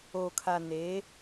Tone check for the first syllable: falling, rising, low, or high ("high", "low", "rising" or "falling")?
low